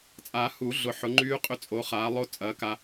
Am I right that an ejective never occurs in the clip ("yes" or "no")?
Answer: no